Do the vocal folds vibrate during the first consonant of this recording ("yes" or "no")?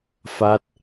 no